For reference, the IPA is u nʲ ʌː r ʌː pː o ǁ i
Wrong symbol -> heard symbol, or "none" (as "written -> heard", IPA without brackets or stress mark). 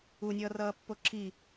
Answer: none